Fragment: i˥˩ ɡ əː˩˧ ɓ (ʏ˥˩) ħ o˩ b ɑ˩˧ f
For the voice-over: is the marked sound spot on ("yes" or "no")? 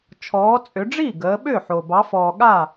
yes